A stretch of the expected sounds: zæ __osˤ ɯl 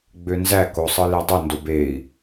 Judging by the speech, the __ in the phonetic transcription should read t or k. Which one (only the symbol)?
k